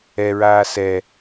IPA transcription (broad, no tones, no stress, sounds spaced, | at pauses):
ɛ ɹ aː s ɛ